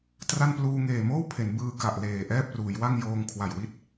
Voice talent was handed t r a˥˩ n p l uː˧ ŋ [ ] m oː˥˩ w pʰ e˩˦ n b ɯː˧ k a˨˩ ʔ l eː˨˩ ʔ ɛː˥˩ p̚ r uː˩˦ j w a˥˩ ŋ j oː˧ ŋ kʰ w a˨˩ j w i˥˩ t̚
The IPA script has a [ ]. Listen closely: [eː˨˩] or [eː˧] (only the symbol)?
eː˨˩